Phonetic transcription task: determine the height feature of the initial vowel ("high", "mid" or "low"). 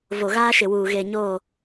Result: mid